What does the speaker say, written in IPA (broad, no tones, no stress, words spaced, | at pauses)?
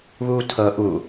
βuːtʰɤ ʔu